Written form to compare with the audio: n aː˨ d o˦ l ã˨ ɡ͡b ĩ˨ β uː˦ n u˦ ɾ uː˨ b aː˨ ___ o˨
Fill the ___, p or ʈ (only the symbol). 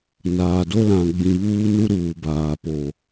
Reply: p